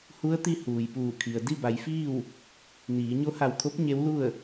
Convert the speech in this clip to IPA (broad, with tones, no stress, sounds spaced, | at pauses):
h u˧˥ ə̯ t̪ i˧ h uː˩ j p uː˧˩ kʰ i˩ ə̯ d i˥˨ b a˩˧ j f iː˥˨ w | n iː˩˧ ɲ o˧˥ h a˧˩ w kʰ o˧˥ p̚ ɲ e˧˥ w l u˥˨ ə̯